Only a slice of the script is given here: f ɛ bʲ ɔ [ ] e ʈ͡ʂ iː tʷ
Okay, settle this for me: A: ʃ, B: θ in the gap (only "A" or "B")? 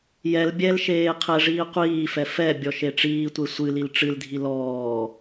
A